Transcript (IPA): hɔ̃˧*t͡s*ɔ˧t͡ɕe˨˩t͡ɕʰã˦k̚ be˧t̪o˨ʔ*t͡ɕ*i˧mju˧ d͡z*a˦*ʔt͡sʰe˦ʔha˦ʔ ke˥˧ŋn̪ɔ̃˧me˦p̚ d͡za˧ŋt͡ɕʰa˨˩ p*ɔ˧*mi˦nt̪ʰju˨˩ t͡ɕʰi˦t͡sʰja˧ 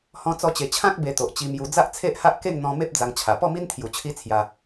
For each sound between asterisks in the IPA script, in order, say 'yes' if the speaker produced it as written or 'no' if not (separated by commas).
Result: yes, yes, yes, no